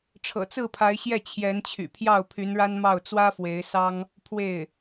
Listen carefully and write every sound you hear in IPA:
ʈ͡ʂʰ ɤ̰˨˩ t͡s ɹ̩˥˩ pʰ a˧˥ ɪ̯ ɕ j ɛ˥˩ t͡ɕʰ j ɛ˧˥ n t͡ɕʰ y̰˨˩ pʰ j ɑ˥˩ ʊ̯ pʰ y˧˥ n ɻ a˥ n m ɑ˥˩ ʊ̯ t͡s w ä˥ f w e˧˥ ɪ̯ s ɑ˥ ŋ | pʰ w e˥˩ ɪ̯

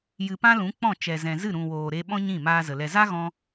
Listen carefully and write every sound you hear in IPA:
j ɨ˨ p ã˧ l ũ˨˦ k͡p ɔ̃˦˨ t͡ʃ ɛ˨ z ɛ̃˨ z ɨ˦˨ ɾ ũ˨ w oː˨ ɾ e˧ ɓ ɔ̃˦ ɲ ĩ˦˨ m aː˧ z ə˨ l ɛ˨ z a˦ ɣ ɔ̃˧

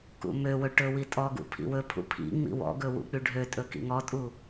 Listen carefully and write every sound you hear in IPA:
k ṵ m ø w ɵ ʈ ɵ w i tʼ ɔ ɡ ṵ pʰ ḭ w ɵ pʰ ṵ pʰ ḭ ŋ͡m ḭ w ɔ̰ ɡ ɵ w ṵ k͡p y ɖʱ ø tʼ ɵ k ḭ ŋ ɔ tʼ u

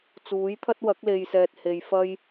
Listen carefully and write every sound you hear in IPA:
t͡s uː˨˥ j t̪ʰ ɐ˥ t̚ w ɐ˨˥ k̚ l e˧ j s ɛː˧ t̚ h e˧ j f ɐ˥ j

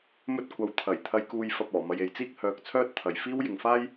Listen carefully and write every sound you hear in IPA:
m ɵ˧ t̚ kʷ ɐ˨ w t̪ʰ ɐ˨˩ j t̪ʰ ɐ˧ j k uː˧ j f ɐ˧ p̚ ɔː˨˩ m ɐ˧ j e˨ j t͡s iː˥ k̚ h œː˨ k̚ t͡sʰ œː˥ t̚ t̪ʰ ɐ˨ j f iː˥ w j ɪ˨ ŋ f aː˥ j

